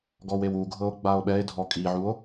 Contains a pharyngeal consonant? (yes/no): yes